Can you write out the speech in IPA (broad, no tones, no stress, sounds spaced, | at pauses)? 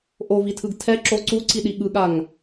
ʔ o v i tʰ ɯ ɡ tʰ ɛ ǁ o ǀ u ǀ i ɗ i ɠ ɯ ɠ a ŋ